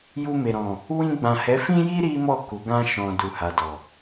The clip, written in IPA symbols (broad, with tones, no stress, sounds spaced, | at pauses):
j u˧ m e˨ ɾ ɔ̃˨ | w ĩ˧ ɡ͡b ã˨ h ɛ˨˦ f ĩ˦ j i˦ ɾ i˦ m ɔ˦˨ k u˨˦ ɡ ã˦ ʃ ɔ̃˧ d u˨ h a˨ d ɔ˨